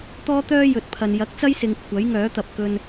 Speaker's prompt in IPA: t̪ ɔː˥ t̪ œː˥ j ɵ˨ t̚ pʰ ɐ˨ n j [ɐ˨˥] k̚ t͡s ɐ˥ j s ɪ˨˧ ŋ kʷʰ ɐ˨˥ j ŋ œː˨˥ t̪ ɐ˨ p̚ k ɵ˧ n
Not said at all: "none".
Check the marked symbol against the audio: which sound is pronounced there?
ɐ˨˥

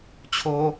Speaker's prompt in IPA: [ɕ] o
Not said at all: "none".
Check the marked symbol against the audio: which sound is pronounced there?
t͡ɕʰ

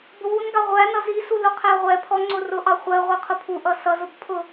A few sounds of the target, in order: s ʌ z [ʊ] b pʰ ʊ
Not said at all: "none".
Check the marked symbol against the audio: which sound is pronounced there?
ʊ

